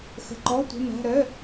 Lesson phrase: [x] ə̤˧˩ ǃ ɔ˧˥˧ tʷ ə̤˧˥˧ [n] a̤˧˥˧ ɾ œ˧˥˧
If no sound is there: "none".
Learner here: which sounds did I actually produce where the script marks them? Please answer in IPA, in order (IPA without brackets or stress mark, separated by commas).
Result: x, n